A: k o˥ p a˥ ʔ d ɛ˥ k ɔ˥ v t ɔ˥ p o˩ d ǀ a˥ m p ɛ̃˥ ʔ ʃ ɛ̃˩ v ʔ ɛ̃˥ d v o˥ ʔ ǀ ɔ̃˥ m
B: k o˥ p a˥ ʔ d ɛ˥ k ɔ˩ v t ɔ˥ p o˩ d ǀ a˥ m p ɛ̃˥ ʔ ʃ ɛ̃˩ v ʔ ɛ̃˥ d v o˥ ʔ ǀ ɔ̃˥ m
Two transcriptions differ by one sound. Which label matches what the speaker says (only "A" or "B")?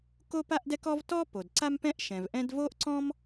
A